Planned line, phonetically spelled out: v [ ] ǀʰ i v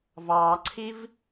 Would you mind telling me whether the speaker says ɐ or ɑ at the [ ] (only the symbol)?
ɑ